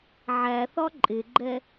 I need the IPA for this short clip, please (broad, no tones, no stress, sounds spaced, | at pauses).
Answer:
ʕ æ θ ɒ ǃʼ ɪ ɡ͡ǃ ɛ